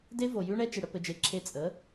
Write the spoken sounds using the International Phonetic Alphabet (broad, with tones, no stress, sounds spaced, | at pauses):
d e˧ v o˨ j ʉ˦ ɳ ɛ˦ t͡ʃ ɨ˨ ɽ ə˧ p ɘ˧ d͡ʒ e˧ ǁʰ e˧ t͡sʼ ə˨˦